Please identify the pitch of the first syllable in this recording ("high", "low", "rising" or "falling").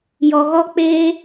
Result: low